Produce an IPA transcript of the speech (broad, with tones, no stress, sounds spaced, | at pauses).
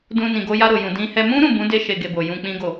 d ũ˧ n ĩ˨ ɡ o˧ j a˧ ɾ o˨ j ũ˨ d ĩ˧ h ɛ˧ m ũ˦ ɾ ũ˦˨ b ũ˨˦ d e˦ ʃ e˧ ɡ e˧ b o˨ j ũ˧ k͡p ĩ˦ ɡ o˦˨